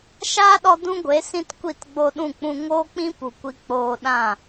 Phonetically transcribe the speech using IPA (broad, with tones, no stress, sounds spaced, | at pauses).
ʃ aː˦ ɗ ɔ˧ d ũ˦ ɡʷ e˨˦ s ĩ˦ t kʷ i˦˨ t ɡ͡b o˧ ɗ ũ˦˨ k͡p ũ˧ ŋ oː˦ k͡p ĩ˦ p u˨ kʷ i˧ k͡p oː˧ ɗ ã˦˨